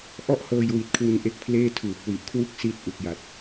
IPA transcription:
ʔ ɔ˥˩ ʔ h ɤː˧ j w i˨˩ t̚ kʰ w u˧ n ʔ e˦˥ k̚ pʰ l eː˥˩ tʰ uː˨˩ p̚ w i˨˩ ʔ kʰ w u˥˩ k̚ s i˥˩ t̚ ʔ u˨˩ k̚ j a˨˩ t̚

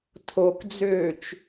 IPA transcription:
tʰ o k d͡z øː t͡ʃ

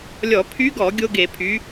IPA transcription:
lʲ ɔ˧˩˧ pʰ y˧˥ ɡ ɔ˧˩˧ ɡʲ o˥ ɡ e˧˩˧ pʰ y˩˥

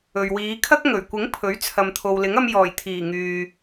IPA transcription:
ɵ˨ ɥ w iː˨˧ kʰ ɐ˥ k̚ ŋ ɵ˨˩ ɥ kʷ ɪ˨˥ ŋ pʰ ɵ˨˥ ɥ t͡sʰ ɐ˨ m t̪ʰ o˨ w l ɪ˨˥ ŋ ɐ˧ m j ɔː˨˩ j t̪ʰ iː˨˩ ŋ yː˨

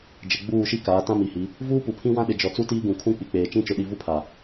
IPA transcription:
d͡ʒ ɪ˨ ɡ͡b uː˦˨ ʃ i˦ k aː˨˦ t ã˦ m i˨ h i˨˦ | v uː˦ p u˨ pʰ ĩ˦ w ã˦ ɗ ɪ˨ d͡ʒ ɔ˨ t͡s u˦ t iː˦ ɡ ũ˨ kʰ ũ˦ k͡p i˨ k͡p eː˨ t͡ʃ ĩ˦ t͡ʃ ʊ˨ ɗ i˨ v u˦ pʰ a˨

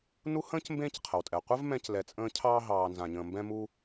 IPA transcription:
n u˦ h ə̃ː˥ c m b ẽː˦ c qʰ ə˩ w tʼ ɛ˩ qʷ ɘ˥ v m ɛ̃˦ c l ɛ˨ t͡sʼ ə̃ː˦ cʰ ɑː˦ ɦ ɑː˨ n z ã˨ ɲ ə̃ː˨ m b ɛ̃˦ m u˥

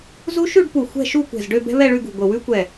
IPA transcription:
z u˦˥ ʃ ʉ˥˧ ɖ p u˧˩ xʷ ɛ̤˥˧ ʃ u˥˧ kʷ ɛ̤˧˩ z ɖ ø˥˧ b ɛ̤˦˥ β ɛ˥˧ ɭ ʉ˥˧ ɡ ṳ˧˩ ɡʷ ə˧˩ w ʉ˦˥ kʷ ɛ˧˩

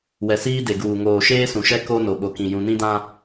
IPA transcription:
w ɛ˨ s iː˦ d e˨ ɡ uː˨ ŋ oː˨ ʃ eː˦ s ũ˨ ʃ ɛ˦ k o˦ n o˨ ɓ o˨ k ĩ˨ j ũ˨ n ĩ˦ d ã˦

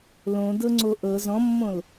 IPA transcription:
l õ d ɤ ŋ͡ǀ o ʔ ɤ z ɔ̃ mː õ l

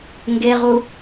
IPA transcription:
ŋ ɡ e ʁ u

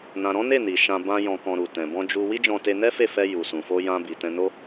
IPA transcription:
n ã˨ ɾ ɔ̃˨˦ n e˦˨ n i˨ ʃ ã˧ b ã˦ j ɔ̃˧ k ɔ̃˧ ɾ u˨ t ɛ̃˨ b ɔ̃˧ d͡ʒ u˧ w i˦ d͡ʒ ɔ̃˧ t e˧ n ɛ˦ f e˦˨ f ɛ˧ j u˨ s ũ˨ f o˧ j ã˧ b i˨ t ɛ̃˧ n o˦

